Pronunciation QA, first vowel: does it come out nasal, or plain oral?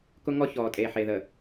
oral